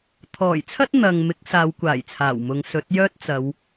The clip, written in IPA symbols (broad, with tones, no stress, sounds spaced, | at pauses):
t̪ʰ ɔː˨˩ j t͡sʰ ɐ˥ t̚ n̪ ɐ˨ ŋ m ɪ˨˥ k̚ s aː˨˧ w kʷ aː˨˩ j t͡sʰ aː˨˩ w m ʊ˨˧ ŋ s ɵ˨˥ t̚ j œː˥ t̚ t͡s ɐ˨˧ w